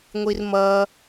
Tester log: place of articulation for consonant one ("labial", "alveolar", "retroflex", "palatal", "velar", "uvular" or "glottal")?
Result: velar